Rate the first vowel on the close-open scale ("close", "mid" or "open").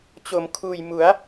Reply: mid